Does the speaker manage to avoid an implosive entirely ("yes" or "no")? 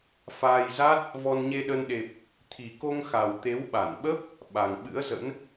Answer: no